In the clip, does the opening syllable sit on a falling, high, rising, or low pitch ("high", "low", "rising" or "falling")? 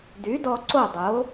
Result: rising